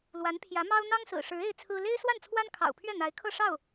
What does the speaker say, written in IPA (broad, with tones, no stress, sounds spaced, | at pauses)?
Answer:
l w a˧˥ n pʰ j ä˧˥ m ɑ˥ ʊ̯ n̪ ɑ˥ ŋ s ɹ̩˨˩ ʂ ɻ̩˧˥ e˥ ɪ̯ t͡sʰ ɹ̩˥ l e˥ ɪ̯ s w a˥˩ n t͡sʰ w a˥ n kʰ ɑ̰˨˩ ʊ̯ pʰ ɥ ɛ˥˩ n̪ a˧˥ ɪ̯ kʰ ɤ˥˧ ʂ ɑ˥˩ ʊ̯